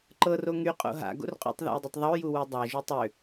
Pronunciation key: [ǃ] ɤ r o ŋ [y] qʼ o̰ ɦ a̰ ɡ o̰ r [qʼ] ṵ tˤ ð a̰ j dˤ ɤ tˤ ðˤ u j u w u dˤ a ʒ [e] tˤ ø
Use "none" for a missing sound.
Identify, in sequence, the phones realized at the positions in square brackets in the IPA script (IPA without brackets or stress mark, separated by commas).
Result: ǃ, y, qʼ, y